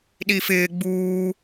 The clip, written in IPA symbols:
ɗ iː f ɪː ɡ͡b uː

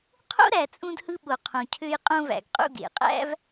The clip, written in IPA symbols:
qʰ o̰˥ ɾ æ˨ t͡sʼ ũ˥ d h ɯ˥ ɓ o˨ qʰ õ˨ cʰ ø˦ j qʼ õ˦ v æ̰˩ ɡ qʼ ṵ˦ ɡ ḛ˩ qʼ æ̰˥ v

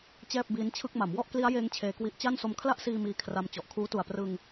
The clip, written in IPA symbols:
t͡ɕ ɛː˥˩ p̚ b iː˦˥ n t͡ɕʰ ɯ˥˩ k̚ m a˩˦ m w ɔ˥˩ ʔ k l i˦˥ a̯ j eː˦˥ ŋ t͡ɕʰ eː˧ k w i˦˥ ʔ t͡ɕ a˥˩ n s o˧ m kʰ l a˥˩ ʔ s iː˧ m iː˧ kʰ r a˧ m t͡ɕ ɔ˨˩ ʔ kʰ uː˦˥ t u˨˩ a̯ p r ɯ˧ ŋ

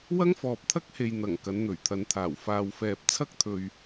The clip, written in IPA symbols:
w ɐ˥ ŋ f ɔː˨ p̚ t̪ʰ ɐ˥ k̚ h e˨ j n̪ ɐ˨˩ ŋ k ɐ˨˧ n n̪ ɵ˨˩ ɥ t̪ʰ ɐ˨˧ n t̪ʰ aː˨˩ w f aː˨ w f ɛː˨ p̚ t͡sʰ ɐ˥ k̚ t̪ʰ ɵ˨ ɥ

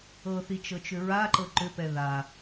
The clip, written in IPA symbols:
ɤ θ i t͡ʃ ɤ t͡ʃ ʏ ɹ a ǃ ɤ ǃ ʏ p ɛ ð a

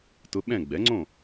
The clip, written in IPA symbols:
t ʊ˧˥ ɓ ɛ̃˥˨ ɡ͡b ɛ˩˥ ŋ͡ǀ õ˥˨

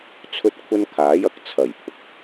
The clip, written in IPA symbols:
t͡sʰ ɵ˥ t̚ kʷʰ ɐ˥ n kʰ aː˨˥ j ɐ˧ k̚ t͡sʰ ɐ˨˩ j pʰ ʊ˨ k̚

